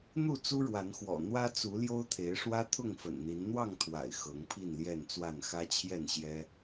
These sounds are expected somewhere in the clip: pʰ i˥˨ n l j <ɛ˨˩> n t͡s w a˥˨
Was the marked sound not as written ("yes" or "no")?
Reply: yes